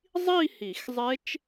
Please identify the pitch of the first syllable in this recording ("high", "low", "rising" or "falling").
falling